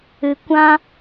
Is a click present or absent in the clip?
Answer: absent